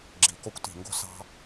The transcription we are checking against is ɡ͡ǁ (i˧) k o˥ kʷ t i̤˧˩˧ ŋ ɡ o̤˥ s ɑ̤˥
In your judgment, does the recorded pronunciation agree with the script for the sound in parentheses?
no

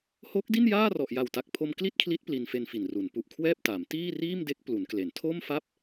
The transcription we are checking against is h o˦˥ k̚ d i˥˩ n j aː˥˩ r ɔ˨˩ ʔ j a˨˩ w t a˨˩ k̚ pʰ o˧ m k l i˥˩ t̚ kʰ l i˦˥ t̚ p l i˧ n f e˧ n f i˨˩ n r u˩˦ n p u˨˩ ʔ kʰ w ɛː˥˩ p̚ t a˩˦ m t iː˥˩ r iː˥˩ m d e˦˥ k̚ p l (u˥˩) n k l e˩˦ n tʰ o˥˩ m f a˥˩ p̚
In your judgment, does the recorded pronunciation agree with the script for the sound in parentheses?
no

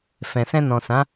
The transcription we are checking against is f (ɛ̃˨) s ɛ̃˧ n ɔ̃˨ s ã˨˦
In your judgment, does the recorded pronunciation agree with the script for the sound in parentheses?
yes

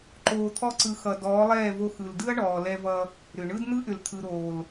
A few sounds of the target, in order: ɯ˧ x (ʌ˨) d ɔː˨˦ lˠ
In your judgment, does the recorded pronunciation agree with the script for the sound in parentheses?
yes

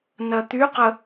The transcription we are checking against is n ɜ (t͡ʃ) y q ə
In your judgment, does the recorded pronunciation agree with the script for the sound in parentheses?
no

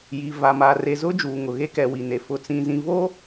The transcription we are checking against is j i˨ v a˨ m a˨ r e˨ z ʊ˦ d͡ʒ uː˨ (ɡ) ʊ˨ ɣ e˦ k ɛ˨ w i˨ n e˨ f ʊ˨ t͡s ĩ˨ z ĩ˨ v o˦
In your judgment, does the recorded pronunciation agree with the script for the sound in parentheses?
no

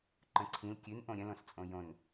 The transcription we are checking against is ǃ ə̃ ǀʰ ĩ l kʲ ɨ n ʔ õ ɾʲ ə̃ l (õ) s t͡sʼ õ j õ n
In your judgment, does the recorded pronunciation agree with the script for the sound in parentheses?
yes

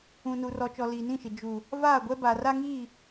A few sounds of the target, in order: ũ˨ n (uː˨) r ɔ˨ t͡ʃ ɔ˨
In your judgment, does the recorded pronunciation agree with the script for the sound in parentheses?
no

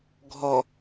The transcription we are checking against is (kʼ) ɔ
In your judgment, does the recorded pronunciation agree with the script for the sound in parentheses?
no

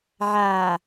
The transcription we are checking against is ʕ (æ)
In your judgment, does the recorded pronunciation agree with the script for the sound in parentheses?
no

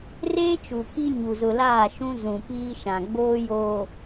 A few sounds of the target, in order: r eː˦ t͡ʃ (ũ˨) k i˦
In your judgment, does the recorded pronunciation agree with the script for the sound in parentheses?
no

